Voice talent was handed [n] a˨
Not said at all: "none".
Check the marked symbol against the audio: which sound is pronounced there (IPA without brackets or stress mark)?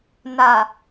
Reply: n